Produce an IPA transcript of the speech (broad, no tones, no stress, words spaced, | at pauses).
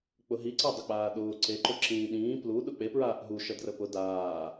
k͡pʊɦiǀa dˤʊk͡paːɗʊː ǀeǃʊ ǁĩːɗĩː pluɗʊ k͡pepɹaːʔ ɦuʃə drəpʊ daː